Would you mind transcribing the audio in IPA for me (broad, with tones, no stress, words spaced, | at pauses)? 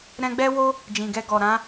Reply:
ɾɛ̃˧ɡ͡bɛ˦wo˦ | d͡ʒĩ˨ɡɛ˧ ɡɔ˨ɾã˨˦